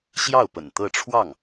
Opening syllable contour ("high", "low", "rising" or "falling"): falling